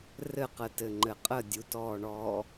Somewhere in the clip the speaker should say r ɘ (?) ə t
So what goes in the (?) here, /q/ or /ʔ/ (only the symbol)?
q